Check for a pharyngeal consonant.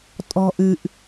absent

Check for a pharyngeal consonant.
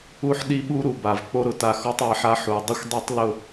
present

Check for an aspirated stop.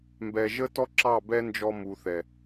absent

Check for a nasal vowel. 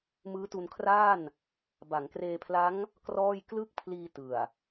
absent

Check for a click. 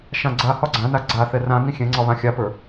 present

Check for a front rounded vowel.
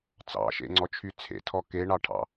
present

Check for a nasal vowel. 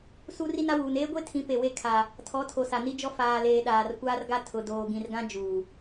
present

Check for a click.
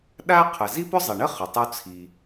absent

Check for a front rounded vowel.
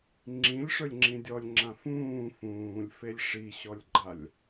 absent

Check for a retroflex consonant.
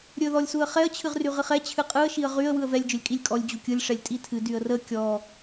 present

